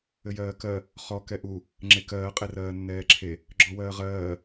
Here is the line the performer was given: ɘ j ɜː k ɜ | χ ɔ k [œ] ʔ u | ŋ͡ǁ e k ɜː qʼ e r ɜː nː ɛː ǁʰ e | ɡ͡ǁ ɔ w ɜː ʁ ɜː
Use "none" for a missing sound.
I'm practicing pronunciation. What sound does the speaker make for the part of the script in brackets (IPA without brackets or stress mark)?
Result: ɛ